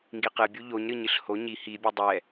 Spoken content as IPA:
ŋ ɡ i q ɨ bʲ u ʎ o ɲ ɾ ɨ ɲ ɨ ɬ h o ɲ i h i bʲ u dˤ ɛ

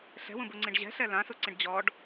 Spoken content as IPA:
ɬ ɛ̤ w ũ b u ŋ͡ǀ ĩ ɖ ʑ ɛ̤ ɬ ɛ l ã s u ǀ ĩ ɖ d͡ʑ ɔ ɖ

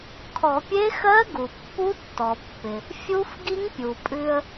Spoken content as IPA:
kʰ ɔ˨˩˦ pʲ e˦˥ x ɜ˦˥ ɡ u˩ pː u˦˥ tː ɔ˩ pː ɪ˩ | fʲ u˦˥ f ɡ i˦˥ ŋ pʲ u˩ pʼ ʉ˧ ə̯

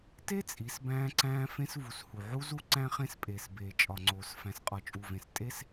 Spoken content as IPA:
t e˦ t͡sʼ i˨˦ s b æ̃ː˦ ǀ æ̃ː˦ f ẽ˦ s v u˨ s h u˨ ʕ u˦ z u˦ ǀ æ̃˦ χ ẽ˦ s pʼ eː˨ s b eː˨ t͡ʃʼ ɒ˨ ŋ͡ǀ oː˨ s f æ̃˨ s qʼ ɒ˨ t͡ʃʼ u˨ v ẽ˨ s tʼ e˦ s

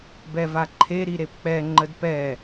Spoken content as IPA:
b ɛ v a ǃʰ e ɾ i ɾ e p k͡p ɛ ŋ͡ǃ ə d p ɛ

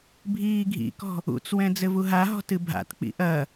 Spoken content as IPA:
bʱ iː ɡʱ ḭ k ɔ̤ | ṵ t͡s w ɛ̃ d͡z ɘ v u ɦ a ɦ ɔ̤ t ɨ bʱ a̰ t k͡p ḭ ʔ ɐ

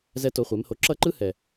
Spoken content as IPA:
z ɛ˦ t o˧ χʷ e˨˦ m h o˧ ǁ ʌ˦ ǃ ɯ˦ h ɛ˨

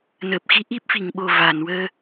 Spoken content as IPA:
n əː˨˩ p̚ x i˧˥ ʔ i˦˥ p̚ f i˨˩˨ ŋ ɓ o˨˩ v a˨˩˨ n w əː˧

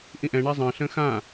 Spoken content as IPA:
ʔ ĩ ʔ ɛ̃ ɳ a zˤ ə̃ː ɬ ə̃ː x ã

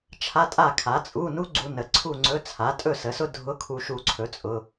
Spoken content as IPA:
t͡ʃʰ a˧˥˧ tʼ a˥˨ kʰ a˩˥ t͡sʼ u˧˥˧ n u˥ ɡ͡ǀ u˧ n ə˩˥ ǀʰ u˥˨ ŋ͡ǀ ɵ˧˥˧ t͡sʰ a˩˥ tʼ ɵ˥˨ s ə˩˥ s ʊ˥ dʱ ʊ˧˥˧ kʰ u˧ ʃ u˧ ǀʰ ɵ˩˥ t͡sʼ ʊ˩˧˩

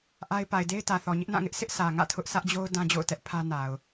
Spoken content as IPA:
ʔ a˦ ɪ̯ p a˨ ɪ̯ d e˦ ɪ̯ t ä˨ θ ɔ˨ ɲ ɪ˦ ʔ n ã˦˨ ŋ ɪ˦ ʔ s ɪ˦ ʔ sʰ ä˨ ŋ ä̰˦˨ tʰ ʊ˦ ʔ s ä˦ ʔ d͡ʑ o˦ ʊ̯ d ã˦ d͡ʑ o̰˦˨ ʊ̯ t ɛ˦ ʔ pʰ ä˦ n a˨ ʊ̯

